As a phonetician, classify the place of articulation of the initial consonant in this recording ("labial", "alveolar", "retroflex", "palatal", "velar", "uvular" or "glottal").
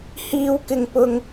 glottal